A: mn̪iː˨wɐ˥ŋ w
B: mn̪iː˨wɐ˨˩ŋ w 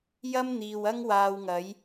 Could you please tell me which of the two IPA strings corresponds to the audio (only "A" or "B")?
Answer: A